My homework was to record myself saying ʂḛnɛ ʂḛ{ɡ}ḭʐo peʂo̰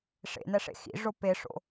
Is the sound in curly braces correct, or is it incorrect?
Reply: incorrect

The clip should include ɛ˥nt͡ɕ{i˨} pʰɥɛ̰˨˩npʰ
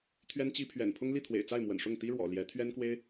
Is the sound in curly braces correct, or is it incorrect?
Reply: incorrect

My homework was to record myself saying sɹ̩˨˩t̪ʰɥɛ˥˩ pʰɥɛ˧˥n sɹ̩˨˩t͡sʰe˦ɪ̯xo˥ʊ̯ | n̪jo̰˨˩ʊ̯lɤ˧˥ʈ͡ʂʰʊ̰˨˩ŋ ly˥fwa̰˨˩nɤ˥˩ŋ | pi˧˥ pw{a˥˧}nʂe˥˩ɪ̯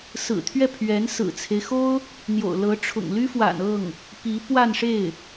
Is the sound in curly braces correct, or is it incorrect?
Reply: correct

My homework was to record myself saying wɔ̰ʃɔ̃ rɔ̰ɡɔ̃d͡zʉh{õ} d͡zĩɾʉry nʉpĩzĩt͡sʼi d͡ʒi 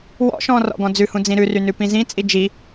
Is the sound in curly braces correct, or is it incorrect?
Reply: incorrect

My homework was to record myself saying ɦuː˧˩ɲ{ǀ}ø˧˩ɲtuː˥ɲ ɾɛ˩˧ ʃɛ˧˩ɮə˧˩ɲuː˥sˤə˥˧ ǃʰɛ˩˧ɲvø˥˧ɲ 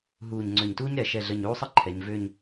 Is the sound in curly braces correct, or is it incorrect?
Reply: incorrect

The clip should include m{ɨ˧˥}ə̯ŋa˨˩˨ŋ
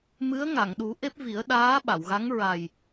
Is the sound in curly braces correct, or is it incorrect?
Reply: correct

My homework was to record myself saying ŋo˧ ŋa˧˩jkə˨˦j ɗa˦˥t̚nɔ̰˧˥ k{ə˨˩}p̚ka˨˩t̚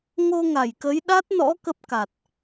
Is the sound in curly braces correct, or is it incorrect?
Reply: incorrect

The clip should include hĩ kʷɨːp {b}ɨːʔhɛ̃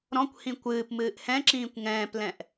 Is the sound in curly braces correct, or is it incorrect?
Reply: incorrect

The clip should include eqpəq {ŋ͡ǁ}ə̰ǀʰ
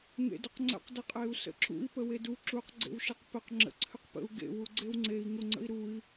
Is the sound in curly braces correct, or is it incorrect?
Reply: correct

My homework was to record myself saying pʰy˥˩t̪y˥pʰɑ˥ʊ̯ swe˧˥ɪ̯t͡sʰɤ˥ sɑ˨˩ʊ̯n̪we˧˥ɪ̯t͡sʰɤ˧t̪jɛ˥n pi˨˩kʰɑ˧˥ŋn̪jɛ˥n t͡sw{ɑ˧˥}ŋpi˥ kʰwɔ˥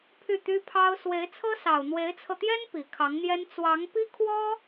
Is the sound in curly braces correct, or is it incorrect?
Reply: correct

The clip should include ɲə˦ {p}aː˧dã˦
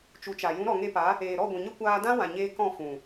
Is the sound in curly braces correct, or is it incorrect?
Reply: incorrect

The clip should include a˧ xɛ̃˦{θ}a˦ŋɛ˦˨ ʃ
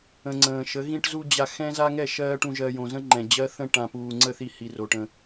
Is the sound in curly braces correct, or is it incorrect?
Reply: incorrect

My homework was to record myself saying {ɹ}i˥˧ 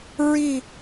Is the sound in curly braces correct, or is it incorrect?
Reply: correct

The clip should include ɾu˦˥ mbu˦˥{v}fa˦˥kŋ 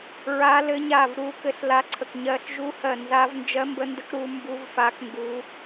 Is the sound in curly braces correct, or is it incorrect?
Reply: correct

